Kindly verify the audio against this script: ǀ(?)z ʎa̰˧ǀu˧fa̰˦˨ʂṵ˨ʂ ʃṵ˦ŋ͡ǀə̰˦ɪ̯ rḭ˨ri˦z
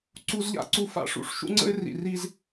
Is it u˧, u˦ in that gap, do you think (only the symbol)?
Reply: u˧